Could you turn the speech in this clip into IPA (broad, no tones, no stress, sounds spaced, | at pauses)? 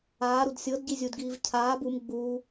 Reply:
aː ɾ u d sʲ ɤ d ɟ i zʲ u d ɡ iː v cʰ aː b u m ɡ͡b uː